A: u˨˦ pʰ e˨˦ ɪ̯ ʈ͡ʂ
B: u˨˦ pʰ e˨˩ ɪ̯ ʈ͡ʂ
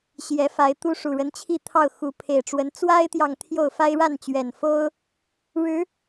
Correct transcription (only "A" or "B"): B